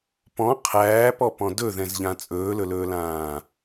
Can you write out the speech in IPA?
p ɔ̃ qʰ æː p ɔ p ɔ̃ d ɵ ð ɛ̃ z ʎ ã t͡sʼ ɵː l ɵ l ɵː l ãː

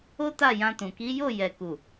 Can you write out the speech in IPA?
o˦ t a˦˨ j ã˧ t ũ˨ k i˨˦ j o˦˨ j ɛ˨ k u˨

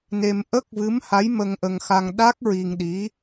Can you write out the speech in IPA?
n e˧ m ʔ ə˦˥ k̚ v ɨ˧˥ m h a˧˥ j m ə˧ ŋ ʔ ə˧ ŋ x a˧ ŋ ɗ a˦˥ k̚ ɹ i˧ ŋ ɗ i˧˥

